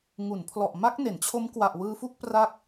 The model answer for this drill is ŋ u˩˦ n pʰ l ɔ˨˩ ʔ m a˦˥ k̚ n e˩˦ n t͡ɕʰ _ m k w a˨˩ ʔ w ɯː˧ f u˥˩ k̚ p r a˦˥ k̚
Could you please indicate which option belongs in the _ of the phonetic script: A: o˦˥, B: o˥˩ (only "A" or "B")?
A